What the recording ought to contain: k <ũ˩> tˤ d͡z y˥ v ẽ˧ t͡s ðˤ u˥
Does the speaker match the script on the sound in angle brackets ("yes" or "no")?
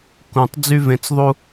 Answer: yes